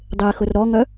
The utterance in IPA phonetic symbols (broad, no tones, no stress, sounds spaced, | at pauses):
dˤ e x ʊ r ɾ ɔ ŋ œ